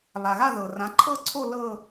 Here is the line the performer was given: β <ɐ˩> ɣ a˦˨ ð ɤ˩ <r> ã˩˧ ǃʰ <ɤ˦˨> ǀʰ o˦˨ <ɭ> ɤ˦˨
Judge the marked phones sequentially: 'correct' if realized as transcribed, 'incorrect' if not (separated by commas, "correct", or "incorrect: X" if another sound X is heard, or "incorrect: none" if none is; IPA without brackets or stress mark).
incorrect: a˩, correct, correct, incorrect: l